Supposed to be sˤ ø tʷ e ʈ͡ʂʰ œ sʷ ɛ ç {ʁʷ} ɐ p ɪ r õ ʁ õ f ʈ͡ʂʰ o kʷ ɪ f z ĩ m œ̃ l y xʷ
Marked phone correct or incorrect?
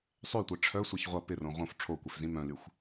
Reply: correct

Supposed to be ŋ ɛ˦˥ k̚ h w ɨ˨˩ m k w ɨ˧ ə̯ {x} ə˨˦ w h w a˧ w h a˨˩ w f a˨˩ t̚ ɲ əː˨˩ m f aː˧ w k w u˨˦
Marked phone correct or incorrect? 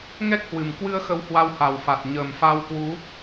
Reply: correct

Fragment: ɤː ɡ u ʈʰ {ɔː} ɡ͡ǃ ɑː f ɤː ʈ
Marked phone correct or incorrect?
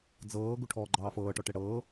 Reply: correct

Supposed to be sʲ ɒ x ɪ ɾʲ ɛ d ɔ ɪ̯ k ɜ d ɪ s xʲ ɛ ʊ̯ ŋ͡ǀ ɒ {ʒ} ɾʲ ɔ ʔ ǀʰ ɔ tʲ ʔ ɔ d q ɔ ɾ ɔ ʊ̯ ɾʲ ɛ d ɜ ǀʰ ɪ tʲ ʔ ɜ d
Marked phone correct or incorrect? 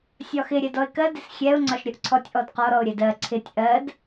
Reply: incorrect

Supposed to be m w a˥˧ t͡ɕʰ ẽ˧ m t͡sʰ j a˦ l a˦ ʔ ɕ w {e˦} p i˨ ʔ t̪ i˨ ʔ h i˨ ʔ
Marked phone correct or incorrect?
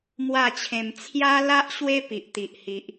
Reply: correct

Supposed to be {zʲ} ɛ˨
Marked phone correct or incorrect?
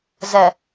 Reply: incorrect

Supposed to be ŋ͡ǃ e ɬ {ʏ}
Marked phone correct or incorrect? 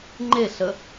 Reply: incorrect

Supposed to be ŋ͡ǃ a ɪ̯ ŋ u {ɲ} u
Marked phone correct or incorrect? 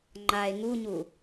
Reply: correct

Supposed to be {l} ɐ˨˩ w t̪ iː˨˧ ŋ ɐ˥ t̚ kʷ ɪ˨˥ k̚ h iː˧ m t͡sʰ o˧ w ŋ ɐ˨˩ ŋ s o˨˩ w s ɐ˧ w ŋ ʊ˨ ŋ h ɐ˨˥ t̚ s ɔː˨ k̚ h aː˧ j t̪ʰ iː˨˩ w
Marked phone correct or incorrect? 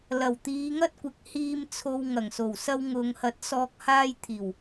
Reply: correct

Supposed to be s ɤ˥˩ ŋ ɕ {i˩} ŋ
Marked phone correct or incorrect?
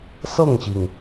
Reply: correct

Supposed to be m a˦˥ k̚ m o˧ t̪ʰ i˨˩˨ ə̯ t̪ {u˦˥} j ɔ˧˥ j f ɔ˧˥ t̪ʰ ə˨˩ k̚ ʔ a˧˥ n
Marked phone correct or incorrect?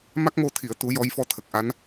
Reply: incorrect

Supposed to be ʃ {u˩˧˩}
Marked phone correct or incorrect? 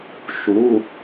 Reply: correct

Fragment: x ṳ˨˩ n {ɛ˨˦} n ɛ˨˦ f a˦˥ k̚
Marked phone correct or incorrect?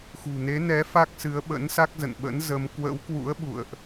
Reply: incorrect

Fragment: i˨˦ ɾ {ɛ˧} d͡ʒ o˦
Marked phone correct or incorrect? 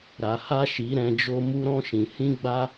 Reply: incorrect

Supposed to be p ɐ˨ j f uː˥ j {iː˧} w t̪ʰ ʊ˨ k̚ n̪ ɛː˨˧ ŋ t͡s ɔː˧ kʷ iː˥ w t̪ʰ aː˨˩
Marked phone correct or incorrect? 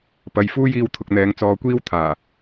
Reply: correct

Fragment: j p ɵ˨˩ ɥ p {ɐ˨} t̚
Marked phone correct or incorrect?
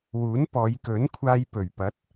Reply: incorrect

